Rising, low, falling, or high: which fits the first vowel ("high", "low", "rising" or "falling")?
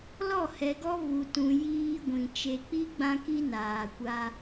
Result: falling